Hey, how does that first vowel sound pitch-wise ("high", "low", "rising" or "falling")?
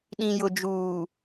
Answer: low